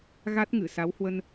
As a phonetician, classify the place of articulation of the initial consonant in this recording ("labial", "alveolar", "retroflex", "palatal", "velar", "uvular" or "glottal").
velar